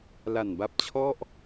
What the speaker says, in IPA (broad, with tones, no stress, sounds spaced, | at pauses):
l a˨˩ n b a˦˥ p̚ t͡ɕʰ ɔ˥˩ ʔ